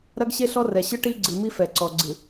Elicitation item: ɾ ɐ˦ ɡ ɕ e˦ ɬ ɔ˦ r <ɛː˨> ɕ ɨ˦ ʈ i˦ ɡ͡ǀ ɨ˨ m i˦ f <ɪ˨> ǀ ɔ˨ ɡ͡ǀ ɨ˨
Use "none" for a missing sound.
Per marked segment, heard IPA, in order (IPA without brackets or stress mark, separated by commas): ɛ˨, ɛ˨